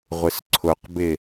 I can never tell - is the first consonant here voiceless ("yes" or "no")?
no